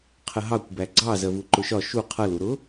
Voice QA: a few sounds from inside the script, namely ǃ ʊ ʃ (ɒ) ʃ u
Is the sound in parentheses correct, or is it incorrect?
correct